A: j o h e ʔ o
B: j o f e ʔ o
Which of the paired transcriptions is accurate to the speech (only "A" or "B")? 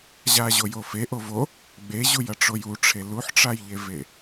B